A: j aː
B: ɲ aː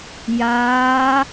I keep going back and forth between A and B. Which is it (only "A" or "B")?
A